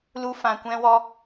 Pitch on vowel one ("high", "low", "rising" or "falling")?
high